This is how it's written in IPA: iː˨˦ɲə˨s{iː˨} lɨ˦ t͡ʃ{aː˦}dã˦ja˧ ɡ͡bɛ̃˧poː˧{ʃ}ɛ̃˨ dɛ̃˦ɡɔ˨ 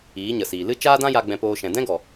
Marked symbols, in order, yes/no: yes, yes, yes

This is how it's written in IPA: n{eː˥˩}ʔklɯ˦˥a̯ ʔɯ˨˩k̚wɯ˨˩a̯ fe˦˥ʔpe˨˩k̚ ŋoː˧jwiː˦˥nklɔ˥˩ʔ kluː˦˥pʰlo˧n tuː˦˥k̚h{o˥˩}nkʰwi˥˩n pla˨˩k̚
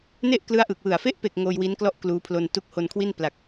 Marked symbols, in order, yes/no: no, no

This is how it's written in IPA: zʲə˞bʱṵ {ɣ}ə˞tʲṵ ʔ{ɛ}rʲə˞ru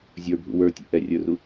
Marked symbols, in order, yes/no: no, yes

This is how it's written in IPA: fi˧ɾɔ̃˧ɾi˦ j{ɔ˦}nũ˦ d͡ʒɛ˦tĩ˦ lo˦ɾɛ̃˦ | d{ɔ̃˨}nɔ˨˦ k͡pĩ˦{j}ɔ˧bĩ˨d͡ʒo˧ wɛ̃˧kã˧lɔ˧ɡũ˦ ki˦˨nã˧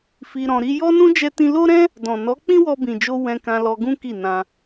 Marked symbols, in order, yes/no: yes, yes, no

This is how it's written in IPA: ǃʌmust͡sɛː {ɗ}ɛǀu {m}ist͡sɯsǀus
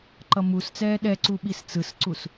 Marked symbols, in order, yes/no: yes, no

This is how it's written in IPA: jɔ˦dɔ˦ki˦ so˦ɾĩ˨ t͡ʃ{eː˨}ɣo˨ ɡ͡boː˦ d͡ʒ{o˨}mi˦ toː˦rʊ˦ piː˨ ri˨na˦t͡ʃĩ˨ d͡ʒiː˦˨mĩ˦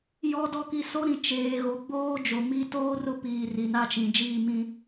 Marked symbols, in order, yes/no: yes, yes

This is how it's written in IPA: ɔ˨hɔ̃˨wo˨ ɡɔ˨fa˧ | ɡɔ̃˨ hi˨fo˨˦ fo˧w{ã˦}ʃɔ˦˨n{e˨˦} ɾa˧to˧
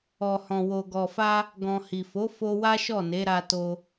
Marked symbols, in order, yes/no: no, yes

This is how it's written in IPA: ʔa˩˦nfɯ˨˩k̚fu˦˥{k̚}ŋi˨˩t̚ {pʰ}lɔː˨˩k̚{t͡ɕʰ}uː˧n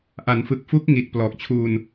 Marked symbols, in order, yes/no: yes, no, yes

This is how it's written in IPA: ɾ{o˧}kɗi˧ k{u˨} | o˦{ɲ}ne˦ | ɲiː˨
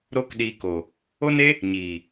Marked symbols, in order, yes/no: no, no, no

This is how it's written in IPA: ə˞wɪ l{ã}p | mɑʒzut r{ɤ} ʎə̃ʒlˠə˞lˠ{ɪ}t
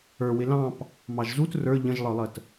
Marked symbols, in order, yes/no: no, no, no

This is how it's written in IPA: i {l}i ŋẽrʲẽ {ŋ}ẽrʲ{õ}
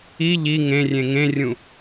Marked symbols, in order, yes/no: no, yes, no

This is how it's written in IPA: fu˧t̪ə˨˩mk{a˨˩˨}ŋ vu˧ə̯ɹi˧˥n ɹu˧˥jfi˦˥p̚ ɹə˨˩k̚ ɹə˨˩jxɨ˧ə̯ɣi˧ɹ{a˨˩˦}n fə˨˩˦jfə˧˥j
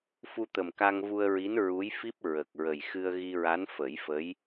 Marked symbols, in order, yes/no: no, no

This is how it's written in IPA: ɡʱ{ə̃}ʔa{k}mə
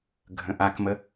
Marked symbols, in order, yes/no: yes, yes

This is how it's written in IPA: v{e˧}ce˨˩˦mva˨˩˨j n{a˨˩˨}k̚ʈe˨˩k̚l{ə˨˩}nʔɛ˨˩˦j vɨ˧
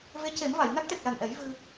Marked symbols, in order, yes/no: no, no, no

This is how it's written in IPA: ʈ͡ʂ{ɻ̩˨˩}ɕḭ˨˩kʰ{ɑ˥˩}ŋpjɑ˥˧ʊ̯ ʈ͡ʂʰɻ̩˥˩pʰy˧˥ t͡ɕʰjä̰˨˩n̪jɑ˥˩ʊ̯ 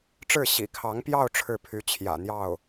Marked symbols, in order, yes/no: no, no

